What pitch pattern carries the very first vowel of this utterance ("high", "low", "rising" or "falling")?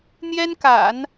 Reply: high